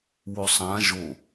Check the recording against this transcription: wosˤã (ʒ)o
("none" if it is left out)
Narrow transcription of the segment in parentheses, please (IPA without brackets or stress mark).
ʒ